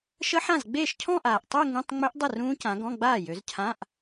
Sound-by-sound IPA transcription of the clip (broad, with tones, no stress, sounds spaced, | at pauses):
ʃ ə˦˥ ħ ã˥˩ z ɡ͡b eː˥˩ ʃ cʰ ɔ̃˥˧ ʔ aː˨˩ ʔ tˤ œ˥˧ ŋ ũ˧˥˧ tˤ ŋ͡m ø˦˥ ʔ dˤ ə˥˩ r ũː˦˥ c ã˨˦ ɡ ɔ̃˧˥˧ ɡ͡b aː˥˩ j ø˨˦ z cʰ ã˧˥˧ ʔ